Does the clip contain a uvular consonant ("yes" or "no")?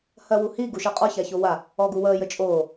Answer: yes